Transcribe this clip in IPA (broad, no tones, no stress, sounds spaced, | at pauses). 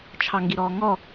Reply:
t͡ʃʰ ɑ ŋ ɡ i ɾ ɔː ŋ ɔ